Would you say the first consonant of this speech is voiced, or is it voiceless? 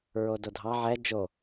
voiced